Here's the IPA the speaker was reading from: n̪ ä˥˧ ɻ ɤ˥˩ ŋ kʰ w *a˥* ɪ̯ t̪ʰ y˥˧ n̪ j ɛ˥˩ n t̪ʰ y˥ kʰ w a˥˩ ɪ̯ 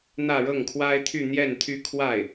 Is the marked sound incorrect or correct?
correct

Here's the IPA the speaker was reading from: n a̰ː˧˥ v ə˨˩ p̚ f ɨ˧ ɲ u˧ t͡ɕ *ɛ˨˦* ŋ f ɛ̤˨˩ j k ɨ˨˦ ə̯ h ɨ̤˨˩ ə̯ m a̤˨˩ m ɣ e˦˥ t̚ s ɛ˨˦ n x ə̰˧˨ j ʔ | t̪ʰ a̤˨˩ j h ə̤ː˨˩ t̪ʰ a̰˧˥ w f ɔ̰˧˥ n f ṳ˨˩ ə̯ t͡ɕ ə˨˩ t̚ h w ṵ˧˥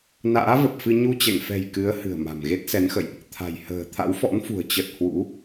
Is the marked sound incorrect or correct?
incorrect: ɛ̰˧˨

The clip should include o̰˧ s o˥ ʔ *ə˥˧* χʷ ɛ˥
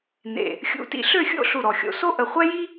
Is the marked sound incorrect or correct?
incorrect: ə˧˩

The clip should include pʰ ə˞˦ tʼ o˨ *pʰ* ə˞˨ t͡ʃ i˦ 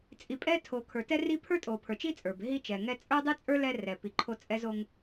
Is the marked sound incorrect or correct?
correct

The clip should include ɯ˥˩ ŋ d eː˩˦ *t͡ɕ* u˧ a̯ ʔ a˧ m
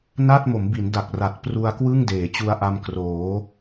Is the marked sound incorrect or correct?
correct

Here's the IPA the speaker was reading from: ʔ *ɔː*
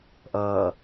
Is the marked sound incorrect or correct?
incorrect: ʌː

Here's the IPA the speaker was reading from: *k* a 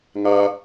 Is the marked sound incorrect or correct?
incorrect: ŋ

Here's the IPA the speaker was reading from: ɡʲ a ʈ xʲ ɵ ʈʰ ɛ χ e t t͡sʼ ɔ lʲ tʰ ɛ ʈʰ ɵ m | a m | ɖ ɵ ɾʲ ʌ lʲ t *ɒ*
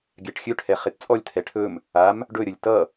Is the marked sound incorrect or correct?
incorrect: ʌ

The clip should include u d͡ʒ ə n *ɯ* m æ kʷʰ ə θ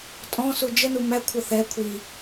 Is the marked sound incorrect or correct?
incorrect: u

